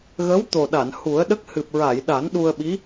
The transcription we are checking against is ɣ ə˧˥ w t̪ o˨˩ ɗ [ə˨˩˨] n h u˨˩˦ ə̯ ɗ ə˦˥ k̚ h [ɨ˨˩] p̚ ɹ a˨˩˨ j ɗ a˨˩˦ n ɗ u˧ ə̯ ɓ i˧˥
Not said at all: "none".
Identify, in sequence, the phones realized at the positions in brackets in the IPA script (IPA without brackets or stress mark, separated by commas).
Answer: a˨˩˨, ɨ˨˩